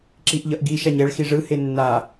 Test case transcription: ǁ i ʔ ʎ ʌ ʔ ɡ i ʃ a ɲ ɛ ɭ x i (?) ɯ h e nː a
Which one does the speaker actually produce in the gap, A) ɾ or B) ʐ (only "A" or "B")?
B